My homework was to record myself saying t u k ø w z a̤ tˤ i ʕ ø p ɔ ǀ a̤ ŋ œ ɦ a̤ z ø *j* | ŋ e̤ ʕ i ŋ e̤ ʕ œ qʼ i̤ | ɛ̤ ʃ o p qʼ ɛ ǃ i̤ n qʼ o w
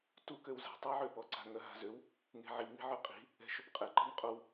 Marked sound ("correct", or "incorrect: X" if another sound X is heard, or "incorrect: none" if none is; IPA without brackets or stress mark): incorrect: w